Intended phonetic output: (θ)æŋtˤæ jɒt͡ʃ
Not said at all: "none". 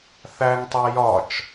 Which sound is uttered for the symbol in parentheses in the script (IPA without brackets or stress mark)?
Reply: θ